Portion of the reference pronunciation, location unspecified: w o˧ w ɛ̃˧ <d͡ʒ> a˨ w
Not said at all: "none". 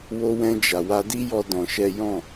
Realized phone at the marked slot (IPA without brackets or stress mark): d͡ʒ